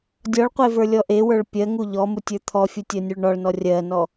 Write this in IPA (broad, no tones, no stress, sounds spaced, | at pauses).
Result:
dʲ ɔ ɭ qʷ e v ə˞ lʲ ɔ ʔ e w ə˞ ɭ pʲ ɜ ŋ u ʎ ɔ m u tʲ ə˞ t̪ʰ ɔ fʲ u tʲ ɜ nʲ u ɭ ɳ ɔ ɭ n ɔ rʲ ɜ n ɔ